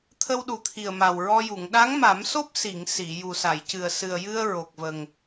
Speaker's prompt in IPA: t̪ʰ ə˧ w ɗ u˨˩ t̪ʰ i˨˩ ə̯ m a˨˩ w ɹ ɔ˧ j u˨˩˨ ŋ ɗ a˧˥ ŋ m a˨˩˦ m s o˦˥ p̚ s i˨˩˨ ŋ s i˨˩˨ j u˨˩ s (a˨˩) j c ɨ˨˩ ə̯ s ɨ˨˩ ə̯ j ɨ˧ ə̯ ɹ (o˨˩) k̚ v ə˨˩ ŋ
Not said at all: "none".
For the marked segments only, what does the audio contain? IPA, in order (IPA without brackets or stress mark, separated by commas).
a˨˩˨, o˨˩